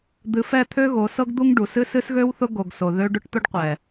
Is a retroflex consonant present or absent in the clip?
present